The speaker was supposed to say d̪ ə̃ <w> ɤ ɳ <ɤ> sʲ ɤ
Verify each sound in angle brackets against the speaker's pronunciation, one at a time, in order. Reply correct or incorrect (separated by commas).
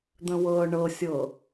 correct, correct